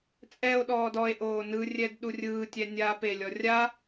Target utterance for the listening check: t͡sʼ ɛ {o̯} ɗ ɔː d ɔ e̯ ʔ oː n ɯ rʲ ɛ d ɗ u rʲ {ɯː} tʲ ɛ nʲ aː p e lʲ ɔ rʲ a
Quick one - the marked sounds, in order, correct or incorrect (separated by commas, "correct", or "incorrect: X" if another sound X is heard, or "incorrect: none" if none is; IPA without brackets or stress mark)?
correct, correct